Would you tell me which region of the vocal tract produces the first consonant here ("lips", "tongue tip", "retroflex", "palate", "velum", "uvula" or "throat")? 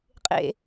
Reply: uvula